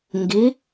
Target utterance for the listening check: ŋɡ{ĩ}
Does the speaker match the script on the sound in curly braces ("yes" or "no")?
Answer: no